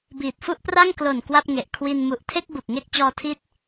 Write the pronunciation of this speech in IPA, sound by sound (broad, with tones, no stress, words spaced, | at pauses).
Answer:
biː˨˩t̚fu˥˩ʔpra˥˩ŋ klo˨˩n kwa˥˩p̚ŋe˨˩ʔ kʰwi˧n mu˨˩ʔtʰe˥˩k̚ bu˨˩k̚ŋe˥˩k̚ t͡ɕɔː˧tʰiː˦˥t̚